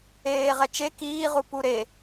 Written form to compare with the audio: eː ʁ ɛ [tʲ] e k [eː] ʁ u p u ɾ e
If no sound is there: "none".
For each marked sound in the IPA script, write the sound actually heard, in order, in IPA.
t͡ʃ, iː

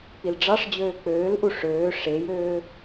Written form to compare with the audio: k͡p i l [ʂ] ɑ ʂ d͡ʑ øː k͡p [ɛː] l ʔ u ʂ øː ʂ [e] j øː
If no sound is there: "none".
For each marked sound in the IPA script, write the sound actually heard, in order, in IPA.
ɖ͡ʐ, øː, e

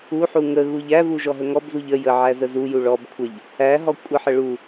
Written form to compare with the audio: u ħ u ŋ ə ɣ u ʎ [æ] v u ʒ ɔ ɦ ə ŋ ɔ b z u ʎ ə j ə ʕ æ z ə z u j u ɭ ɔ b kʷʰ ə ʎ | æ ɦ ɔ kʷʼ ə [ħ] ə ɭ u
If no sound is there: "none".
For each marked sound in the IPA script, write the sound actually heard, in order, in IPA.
æ, ħ

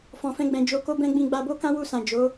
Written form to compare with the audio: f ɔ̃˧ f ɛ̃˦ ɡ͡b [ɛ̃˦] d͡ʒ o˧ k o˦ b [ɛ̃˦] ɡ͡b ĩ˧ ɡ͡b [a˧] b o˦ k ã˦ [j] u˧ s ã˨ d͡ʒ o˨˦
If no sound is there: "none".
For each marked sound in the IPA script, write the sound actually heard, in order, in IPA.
ɛ̃˧, ɛ̃˦, a˧, w

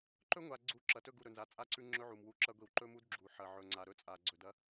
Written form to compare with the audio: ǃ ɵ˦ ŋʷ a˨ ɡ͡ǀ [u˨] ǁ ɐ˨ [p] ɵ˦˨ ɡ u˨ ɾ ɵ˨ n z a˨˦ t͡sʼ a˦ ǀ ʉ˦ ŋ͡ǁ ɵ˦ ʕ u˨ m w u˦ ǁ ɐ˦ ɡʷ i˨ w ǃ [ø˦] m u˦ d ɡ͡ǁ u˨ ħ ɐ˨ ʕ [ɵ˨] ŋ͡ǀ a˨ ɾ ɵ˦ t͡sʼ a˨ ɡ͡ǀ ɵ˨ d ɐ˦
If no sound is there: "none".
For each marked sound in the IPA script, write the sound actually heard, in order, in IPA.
u˨, t, ɵ˦, ɵ˨

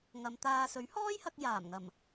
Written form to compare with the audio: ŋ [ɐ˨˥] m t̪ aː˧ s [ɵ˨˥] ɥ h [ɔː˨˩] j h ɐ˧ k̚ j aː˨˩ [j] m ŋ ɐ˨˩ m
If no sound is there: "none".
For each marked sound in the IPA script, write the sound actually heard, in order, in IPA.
ɐ˨, ɵ˨˥, ɔː˥, none

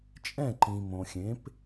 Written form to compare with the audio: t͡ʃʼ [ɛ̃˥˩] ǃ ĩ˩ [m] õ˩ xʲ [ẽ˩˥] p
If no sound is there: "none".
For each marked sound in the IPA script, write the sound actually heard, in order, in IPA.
ɛ̃˥˩, m, ẽ˩˥

